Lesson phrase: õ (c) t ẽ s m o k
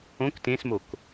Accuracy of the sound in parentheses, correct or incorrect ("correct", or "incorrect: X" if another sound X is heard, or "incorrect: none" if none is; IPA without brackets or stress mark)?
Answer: incorrect: k